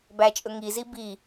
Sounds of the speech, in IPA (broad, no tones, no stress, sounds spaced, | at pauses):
b æ t͡ʃʼ ɵ ŋ i z i b i